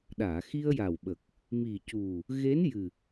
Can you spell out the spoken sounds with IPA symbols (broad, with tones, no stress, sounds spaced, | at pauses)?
ɗ aː˨˩˨ x i˧ ə̯ j a˨˩ w ɓ ə˨˩ k̚ | m i˨˩ c u˨˩ | ɣ e˧˥ n j ɨ˨˩